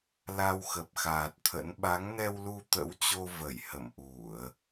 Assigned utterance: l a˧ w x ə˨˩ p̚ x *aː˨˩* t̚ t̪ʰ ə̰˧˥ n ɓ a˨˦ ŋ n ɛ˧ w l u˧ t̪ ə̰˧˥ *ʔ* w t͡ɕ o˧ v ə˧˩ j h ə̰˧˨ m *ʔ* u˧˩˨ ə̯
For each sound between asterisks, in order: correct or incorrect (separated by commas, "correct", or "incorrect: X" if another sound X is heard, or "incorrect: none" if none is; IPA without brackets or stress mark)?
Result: correct, incorrect: none, correct